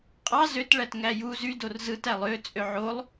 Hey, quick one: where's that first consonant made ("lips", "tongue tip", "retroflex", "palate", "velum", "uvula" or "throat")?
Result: uvula